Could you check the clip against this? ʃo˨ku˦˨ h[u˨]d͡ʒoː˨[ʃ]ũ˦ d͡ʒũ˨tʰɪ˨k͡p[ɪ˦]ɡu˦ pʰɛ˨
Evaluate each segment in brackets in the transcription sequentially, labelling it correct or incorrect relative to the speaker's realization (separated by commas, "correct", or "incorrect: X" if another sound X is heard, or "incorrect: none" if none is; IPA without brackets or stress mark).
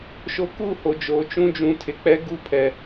incorrect: o˨, incorrect: t͡ʃ, incorrect: ɛ˦